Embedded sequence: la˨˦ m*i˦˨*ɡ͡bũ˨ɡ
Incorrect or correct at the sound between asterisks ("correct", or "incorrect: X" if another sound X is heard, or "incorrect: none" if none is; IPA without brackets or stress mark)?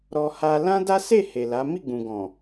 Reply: correct